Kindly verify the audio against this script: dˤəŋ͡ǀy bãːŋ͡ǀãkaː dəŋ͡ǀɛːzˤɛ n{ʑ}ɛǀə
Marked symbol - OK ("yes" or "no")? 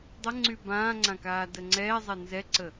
no